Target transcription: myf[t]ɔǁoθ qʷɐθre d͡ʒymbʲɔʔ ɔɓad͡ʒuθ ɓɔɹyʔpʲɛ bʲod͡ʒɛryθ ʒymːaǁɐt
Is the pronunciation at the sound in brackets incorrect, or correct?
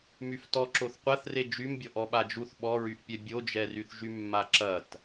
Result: correct